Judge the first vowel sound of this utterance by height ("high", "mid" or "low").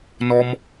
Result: mid